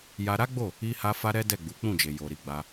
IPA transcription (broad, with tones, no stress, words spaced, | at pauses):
ja˧ɾa˦ɡ͡bo˦˨ | i˦ha˦ fa˦ɾɛ˦ dɛ˦˨ɡ͡bu˨˦k͡pũ˦˨d͡ʒe˨ jo˨ɾi˧ɡ͡ba˧